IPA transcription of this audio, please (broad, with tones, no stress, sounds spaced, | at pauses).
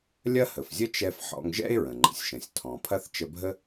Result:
lʲ ɐ˥ h ə˩ f zʲ ə˥ t͡ʃ ɛ˧ f ħ ɔ̰˧ ŋ ʒ ɛ̰˥ e̯ ɹ ə̃˩ ŋ͡ǃ ə̰˩ sʲ ʃ ə̃˩ sʲ tʰ ɔ̃˩ pʰ ɐ˥ θ t͡ʃ ə˧ bʱ ə˥